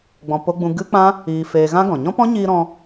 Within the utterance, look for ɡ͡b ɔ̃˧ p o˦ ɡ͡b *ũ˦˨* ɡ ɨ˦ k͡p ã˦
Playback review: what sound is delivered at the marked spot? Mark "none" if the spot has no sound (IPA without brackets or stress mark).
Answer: ũ˦